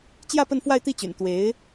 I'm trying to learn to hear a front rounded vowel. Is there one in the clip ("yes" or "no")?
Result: yes